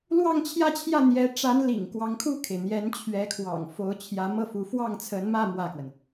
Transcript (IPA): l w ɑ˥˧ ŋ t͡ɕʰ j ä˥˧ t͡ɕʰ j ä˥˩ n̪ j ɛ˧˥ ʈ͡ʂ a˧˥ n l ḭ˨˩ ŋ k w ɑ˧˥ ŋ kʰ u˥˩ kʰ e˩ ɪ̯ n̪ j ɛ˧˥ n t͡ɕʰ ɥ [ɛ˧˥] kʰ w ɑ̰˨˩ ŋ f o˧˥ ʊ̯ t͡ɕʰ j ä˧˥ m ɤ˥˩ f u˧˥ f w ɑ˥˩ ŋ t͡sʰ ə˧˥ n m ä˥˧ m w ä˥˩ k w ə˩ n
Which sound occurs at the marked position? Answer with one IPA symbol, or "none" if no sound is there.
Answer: ɛ˧˥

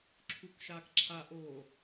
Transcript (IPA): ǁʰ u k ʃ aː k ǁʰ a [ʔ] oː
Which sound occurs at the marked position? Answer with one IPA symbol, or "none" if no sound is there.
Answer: ʔ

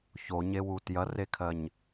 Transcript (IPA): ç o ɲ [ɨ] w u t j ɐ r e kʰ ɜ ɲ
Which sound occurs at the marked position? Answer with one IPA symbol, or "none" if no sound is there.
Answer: e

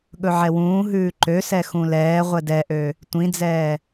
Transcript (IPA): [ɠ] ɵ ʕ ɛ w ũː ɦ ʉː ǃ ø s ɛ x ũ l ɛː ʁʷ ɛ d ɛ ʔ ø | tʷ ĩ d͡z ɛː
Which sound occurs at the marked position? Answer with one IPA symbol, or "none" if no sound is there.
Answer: ɠ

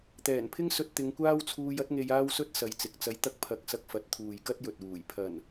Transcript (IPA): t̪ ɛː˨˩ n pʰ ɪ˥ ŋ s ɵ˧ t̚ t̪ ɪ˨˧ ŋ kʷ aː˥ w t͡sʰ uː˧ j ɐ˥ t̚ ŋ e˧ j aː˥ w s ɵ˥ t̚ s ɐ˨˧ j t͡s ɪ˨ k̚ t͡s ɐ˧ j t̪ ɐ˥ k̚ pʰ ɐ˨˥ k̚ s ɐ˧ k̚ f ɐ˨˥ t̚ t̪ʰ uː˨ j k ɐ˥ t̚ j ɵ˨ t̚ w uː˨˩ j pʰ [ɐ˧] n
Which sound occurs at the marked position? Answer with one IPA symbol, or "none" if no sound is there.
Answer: ɐ˨˩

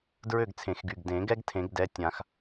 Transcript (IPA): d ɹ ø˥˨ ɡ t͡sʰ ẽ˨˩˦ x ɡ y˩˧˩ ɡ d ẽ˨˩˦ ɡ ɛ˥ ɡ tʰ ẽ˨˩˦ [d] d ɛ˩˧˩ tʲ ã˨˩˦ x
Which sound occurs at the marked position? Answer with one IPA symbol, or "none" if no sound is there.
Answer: ɡ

